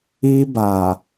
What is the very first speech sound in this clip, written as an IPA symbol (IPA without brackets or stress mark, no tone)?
i